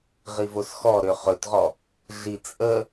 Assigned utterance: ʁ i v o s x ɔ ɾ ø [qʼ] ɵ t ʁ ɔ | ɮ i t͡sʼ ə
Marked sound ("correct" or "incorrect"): incorrect